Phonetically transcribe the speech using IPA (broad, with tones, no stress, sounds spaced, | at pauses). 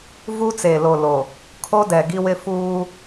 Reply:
v u˦ t͡s eː˨ l o˨ l o˨ | kʰ o˦ d ɛ˨ ɡ i˦ w ɪ˦ f uː˦